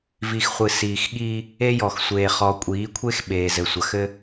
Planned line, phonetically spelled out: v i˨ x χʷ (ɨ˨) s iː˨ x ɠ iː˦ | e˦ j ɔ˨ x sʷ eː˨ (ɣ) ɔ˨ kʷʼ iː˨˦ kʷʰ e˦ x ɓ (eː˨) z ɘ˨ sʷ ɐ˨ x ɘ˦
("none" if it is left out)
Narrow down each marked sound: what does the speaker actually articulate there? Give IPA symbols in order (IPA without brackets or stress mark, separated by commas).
ɨ˨, χ, eː˨